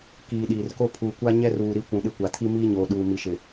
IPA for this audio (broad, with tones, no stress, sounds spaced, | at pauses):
k iː˨ ɗ iː˨ r k o˦ pʰ uː˨ kʷ a˦ ɲ ɛ˦ r uː˨ ɾ i˨˦ kʷ ũ˨ ɗ ɪ˦˨ kʷ a˨ tʰ i˦ m iː˦ ɲ oː˨ ɗ uː˨ m i˨ ʃ ɪ˨